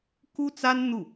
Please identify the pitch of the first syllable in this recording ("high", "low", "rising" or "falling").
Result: high